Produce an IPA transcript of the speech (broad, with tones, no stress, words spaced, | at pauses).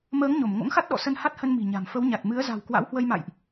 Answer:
məː˨˦ŋ ɲo˧˩m ŋo̰˧˥ŋxa˦˥t̚ ɗɔ̰˧˨ sə˧nha˦˥t̚hə˧n mi̤˨˩ɲa̤˨˩m fə˨˦wɲa˨˩t̚ mɨ˨˦ə̯za̤˨˩w kwa̰˧˥whwə˧jma̰˧˨jʔ